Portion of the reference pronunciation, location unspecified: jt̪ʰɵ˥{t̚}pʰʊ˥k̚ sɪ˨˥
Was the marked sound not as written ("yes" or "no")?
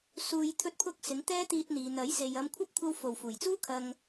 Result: no